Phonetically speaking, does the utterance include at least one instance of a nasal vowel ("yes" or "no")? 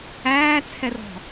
no